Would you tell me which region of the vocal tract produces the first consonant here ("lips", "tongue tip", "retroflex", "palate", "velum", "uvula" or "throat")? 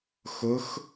velum